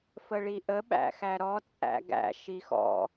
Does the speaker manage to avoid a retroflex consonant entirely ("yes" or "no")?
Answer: no